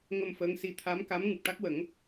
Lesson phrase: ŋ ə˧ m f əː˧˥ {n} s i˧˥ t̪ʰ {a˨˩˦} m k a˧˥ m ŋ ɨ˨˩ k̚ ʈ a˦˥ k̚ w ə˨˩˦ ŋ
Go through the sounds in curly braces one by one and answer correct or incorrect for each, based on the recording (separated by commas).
incorrect, incorrect